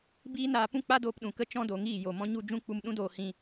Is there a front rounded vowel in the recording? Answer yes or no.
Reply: no